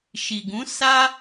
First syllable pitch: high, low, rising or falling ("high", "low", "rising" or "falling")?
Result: low